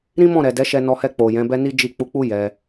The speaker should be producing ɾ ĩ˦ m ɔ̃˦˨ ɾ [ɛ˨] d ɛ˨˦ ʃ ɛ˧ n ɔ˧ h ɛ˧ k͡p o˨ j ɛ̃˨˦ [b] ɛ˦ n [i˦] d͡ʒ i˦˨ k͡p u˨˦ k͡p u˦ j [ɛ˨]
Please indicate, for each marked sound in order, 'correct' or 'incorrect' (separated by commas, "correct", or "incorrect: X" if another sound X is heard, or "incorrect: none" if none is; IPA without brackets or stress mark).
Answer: correct, correct, correct, incorrect: ɛ˧